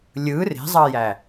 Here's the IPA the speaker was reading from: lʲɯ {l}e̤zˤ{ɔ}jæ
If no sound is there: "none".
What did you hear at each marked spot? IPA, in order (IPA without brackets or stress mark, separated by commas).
r, ɑ